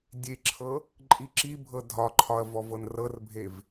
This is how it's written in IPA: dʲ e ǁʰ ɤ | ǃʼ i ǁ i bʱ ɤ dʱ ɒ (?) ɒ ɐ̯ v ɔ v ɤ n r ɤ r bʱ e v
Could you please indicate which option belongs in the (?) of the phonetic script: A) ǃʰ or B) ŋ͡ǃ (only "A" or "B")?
A